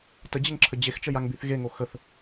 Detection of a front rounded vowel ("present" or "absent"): present